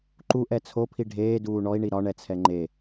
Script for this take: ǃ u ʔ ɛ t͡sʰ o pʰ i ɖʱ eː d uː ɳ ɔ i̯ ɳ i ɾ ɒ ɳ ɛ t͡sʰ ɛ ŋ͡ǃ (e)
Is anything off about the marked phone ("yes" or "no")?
no